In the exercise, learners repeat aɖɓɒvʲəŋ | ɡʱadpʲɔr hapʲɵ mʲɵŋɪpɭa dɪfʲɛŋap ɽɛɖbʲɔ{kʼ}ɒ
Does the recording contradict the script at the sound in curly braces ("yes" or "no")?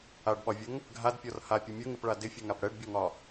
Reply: yes